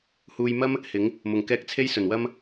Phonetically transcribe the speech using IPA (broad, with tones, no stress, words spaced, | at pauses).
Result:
huː˨j mɐ˥m | hɪ˨˥ŋ | mʊ˨˩ŋkɛː˧k̚t͡sʰe˥j sɵ˨˩nwɐ˥m